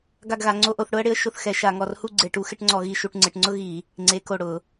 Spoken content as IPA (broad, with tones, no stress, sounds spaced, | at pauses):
ɡ a˥˧ ɡ ɣ a˨˦ ŋ͡ǀ o˥˧ ʔ o˥˧ θ ɽ ʊ˥ ə̯ ɽ ɪ˨˦ ə̯ ʃ ʊ˥˧ θ x ɛ˨˦ ʃ a˧˩˧ ŋ ɔ˧˩ r h u˥˧ ɡ͡ǀ e˧˩˧ ʈ u˨˦ x ɪ˥˧ ʈ ŋ͡ǀ ɔ˧˩˧ ɣ i˨˦ ʃ u˧˩˧ ʈ ŋ͡ǀ ɪ˧˩˧ ʈ ŋ͡ǀ ʊ˥ ɣ i˧˩˧ | ŋ͡ǀ e˨˦ k o˧˩ ɽ ʊ˧˩˧